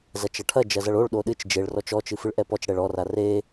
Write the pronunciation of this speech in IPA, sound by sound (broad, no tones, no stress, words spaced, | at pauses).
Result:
zɐt͡ʃɐʈʰɐ d͡ʒɐzɐɭoɭ ɗoɗɨt͡ʃ d͡ʒeɭ rɔt͡ʃɔt͡ʃɨ fɨɭʔɛpɔt͡ʃ ɽɛɭɔra re